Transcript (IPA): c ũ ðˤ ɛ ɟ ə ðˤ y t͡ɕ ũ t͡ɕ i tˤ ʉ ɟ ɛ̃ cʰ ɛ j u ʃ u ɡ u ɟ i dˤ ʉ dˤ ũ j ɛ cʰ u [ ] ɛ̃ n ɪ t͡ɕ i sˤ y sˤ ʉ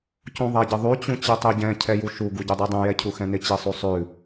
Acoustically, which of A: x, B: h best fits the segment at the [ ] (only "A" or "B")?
A